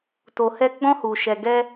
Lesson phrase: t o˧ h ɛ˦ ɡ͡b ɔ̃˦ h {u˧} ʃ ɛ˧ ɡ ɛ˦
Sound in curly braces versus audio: correct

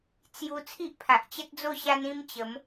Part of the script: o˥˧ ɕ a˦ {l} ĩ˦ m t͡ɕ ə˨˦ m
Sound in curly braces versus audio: incorrect: n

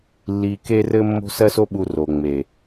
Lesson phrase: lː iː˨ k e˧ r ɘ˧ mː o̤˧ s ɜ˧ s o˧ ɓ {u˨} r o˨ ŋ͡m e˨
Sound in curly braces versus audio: correct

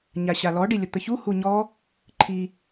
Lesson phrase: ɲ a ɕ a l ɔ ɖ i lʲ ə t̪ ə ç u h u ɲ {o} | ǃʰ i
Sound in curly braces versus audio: incorrect: ɔ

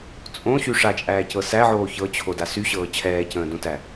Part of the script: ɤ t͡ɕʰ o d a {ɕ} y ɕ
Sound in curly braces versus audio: incorrect: s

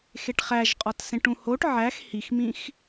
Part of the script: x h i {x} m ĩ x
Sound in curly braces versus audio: correct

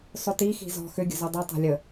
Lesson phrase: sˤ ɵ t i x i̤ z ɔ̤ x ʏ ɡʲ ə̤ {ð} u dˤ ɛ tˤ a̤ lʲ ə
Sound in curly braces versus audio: incorrect: z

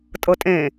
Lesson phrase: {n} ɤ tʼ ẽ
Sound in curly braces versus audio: incorrect: tʼ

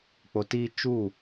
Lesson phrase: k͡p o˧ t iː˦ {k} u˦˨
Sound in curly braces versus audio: incorrect: t͡ʃ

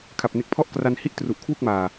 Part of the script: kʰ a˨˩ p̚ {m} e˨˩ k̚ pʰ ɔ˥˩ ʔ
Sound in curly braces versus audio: incorrect: n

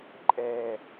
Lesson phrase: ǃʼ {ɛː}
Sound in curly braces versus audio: correct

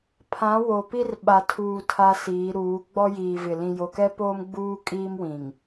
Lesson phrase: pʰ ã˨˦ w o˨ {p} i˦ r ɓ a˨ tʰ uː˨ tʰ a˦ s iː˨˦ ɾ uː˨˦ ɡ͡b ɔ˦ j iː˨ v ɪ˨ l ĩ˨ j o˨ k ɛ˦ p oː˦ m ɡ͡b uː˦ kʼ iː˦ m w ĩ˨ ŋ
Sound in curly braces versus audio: correct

